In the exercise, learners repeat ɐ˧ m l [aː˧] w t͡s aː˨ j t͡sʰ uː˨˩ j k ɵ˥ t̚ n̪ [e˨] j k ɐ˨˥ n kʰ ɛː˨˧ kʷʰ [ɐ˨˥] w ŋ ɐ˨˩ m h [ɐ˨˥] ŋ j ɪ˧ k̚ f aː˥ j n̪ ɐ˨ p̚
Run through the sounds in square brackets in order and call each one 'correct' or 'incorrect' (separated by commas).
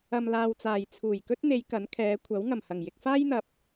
correct, incorrect, correct, incorrect